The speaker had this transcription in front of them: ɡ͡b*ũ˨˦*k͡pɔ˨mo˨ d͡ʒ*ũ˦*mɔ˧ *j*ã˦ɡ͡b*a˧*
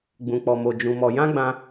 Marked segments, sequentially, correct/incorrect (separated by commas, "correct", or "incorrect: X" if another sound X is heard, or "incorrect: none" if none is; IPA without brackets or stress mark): incorrect: ũ˨, incorrect: ũ˧, correct, incorrect: ã˧